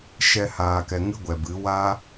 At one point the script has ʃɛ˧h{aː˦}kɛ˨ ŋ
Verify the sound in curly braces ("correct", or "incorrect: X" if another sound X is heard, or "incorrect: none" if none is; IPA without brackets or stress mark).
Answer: incorrect: aː˨